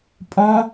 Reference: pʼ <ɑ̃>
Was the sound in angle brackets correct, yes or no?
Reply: no